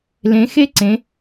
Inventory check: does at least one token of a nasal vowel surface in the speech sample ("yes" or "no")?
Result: yes